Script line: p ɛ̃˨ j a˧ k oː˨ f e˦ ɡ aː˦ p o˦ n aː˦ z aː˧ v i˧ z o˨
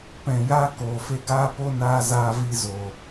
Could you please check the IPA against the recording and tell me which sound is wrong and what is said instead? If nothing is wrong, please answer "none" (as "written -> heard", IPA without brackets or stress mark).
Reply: none